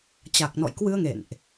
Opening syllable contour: low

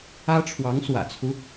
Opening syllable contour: high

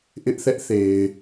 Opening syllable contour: high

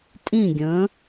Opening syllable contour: falling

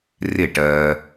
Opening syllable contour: falling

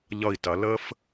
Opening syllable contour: falling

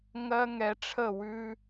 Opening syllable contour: high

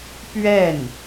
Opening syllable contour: falling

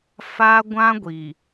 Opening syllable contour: high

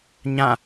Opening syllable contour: falling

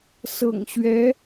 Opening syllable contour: low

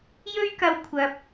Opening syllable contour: high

